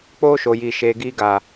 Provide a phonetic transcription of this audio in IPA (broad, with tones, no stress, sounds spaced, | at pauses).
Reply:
k͡p oː˦ ʃ o˨ j iː˨ ʃ eː˨ ɡ iː˧ ɡ aː˨